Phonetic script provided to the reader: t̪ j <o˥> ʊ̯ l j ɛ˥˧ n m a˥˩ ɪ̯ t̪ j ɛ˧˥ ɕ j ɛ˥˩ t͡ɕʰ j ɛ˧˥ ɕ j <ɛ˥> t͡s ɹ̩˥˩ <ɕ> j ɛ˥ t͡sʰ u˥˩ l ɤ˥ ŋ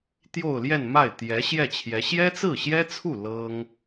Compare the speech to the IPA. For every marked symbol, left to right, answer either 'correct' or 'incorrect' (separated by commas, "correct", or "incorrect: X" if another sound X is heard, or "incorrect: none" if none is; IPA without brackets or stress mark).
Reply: incorrect: o˥˧, correct, correct